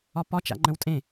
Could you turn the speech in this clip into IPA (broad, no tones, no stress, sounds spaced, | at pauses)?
ɒ p ɒ t͡ʃ a̰ ŋ͡ǃ ə̃ w tʼ ẽ